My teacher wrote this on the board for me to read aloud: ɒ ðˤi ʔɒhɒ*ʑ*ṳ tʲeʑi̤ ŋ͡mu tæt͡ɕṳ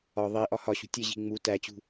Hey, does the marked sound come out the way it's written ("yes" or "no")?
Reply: no